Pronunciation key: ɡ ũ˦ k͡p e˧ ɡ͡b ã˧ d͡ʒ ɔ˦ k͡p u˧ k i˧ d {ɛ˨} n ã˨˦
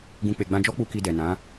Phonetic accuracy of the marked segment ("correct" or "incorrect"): correct